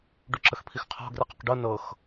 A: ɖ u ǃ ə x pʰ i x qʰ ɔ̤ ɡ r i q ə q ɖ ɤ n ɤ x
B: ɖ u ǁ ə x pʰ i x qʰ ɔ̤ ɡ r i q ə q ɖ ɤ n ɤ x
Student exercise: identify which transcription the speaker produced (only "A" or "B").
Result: B